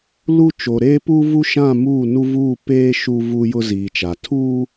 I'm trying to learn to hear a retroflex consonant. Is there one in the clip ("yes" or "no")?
no